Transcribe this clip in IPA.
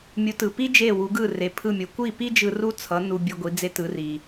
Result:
mʲ u˩˥ t ɯ˩ p i˥ d͡ʒ e˥˩ w u˩˥ ɡ ɯ˥˩ r e˩ pʰ ɯ˥˩ mʲ o˩˥ kʷ i˥˩ p i˥ d͡ʒ ɯ˧ r u˥ t͡sʰ ʌ˩˥ n u˧ bʲ ɯ˧ ɡʷ i˩˥ d͡z e˥ t ɯ˩˥ r i˩

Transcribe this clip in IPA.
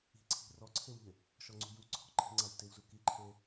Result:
i̤ ǀʰ i̤ r ɔ ǀʰ e w ʎ ɪ | ʃ ɔ ŋ͡ǀ ṳ j u ǀʰ ɔ̤ ǃ i̤ ŋ͡ǀ a w t ɪ w z u k i ǃʰ e

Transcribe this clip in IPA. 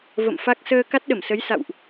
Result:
v ə̰˧˨ m f a˦˥ k̚ s əː˧ k a˦˥ t̚ ɗ ə˧˩ m s ə˨˦ j s a̰˧˨ w ʔ

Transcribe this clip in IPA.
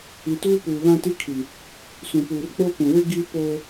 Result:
i˨ t uː˦ p uː˨ β ã˦ t i˦ kʰ i˨ | s ũ˨ p uː˨ r k͡p o˦ p ũ˨ w ɪ˦ ɡ i˦ p oː˦

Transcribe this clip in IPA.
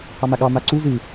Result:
h ɑ m a ɠ ɑ m a ǀ u z ɨ

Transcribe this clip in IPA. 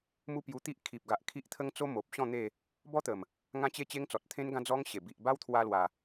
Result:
m u˦ p j u˧ t̪ i˦ ʔ kʰ i˨ p̚ ɡ a˨ ʔ kʰ i˦ ʔ t̪ʰ ə˦ ŋ t͡s o˦ m o˨ p̚ ɕ ɔ̃˥˧ n̪ e˥˧ | b ɔ˦ t̪ ə˨˩ m | ŋ ã˦ t͡ɕ e˥˧ t͡ɕ e˦ ŋ t͡s ɔ˨ t̚ t̪ʰ ẽ˦ n ɡ ã˦ d͡z ɔ˦ ŋ ɕ e˨˩ b i˨ ʔ b a˦ w t̪ʰ w a˧ l w a˨˩

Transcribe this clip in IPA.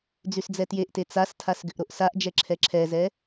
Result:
d͡z y s d͡z ɛ t j e ʔ t e t͡s a s tʰ a s ɡ ʏ ʔ ɾ o ʔ s a ʔ d͡ʒ ɛ ǁʰ ɛ ǁʰ ɛ z ɛ

